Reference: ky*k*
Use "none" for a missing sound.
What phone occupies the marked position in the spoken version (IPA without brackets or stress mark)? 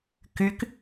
k